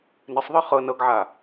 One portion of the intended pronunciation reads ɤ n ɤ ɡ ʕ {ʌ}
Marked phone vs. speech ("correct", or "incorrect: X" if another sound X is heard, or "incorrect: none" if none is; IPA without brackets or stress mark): incorrect: a